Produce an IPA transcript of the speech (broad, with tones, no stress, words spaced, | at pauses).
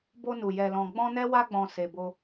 bo˧nu˨ jɛ˧lɔ̃˧ ɡ͡bɔ̃˦nɛ˦wa˦ɡ͡bɔ̃˧ se˧bo˦